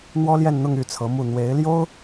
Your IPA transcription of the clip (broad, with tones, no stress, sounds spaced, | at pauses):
n̪ w ɔ˥ l j ɛ˥˧ n n̪ ʊ˥˧ ŋ y˥˩ t͡sʰ ɤ˧˥ m u˥˩ n̪ w e˧˥ ɪ̯ l j o˥ ʊ̯